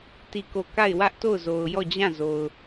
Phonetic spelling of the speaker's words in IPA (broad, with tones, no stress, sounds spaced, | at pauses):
t i˦˨ k o˦˨ k a˦˨ ɪ̯ w ä˦ ʔ t o˦˨ ʊ̯ z o˨ ʊ̯ j ɔ˦˨ d͡ʑ ã˦˨ z o˨ ʊ̯